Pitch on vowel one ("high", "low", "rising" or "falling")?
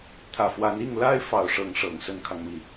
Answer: low